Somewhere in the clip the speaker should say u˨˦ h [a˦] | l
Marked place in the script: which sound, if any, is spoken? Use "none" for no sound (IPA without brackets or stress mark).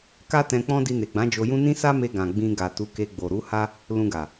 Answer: a˦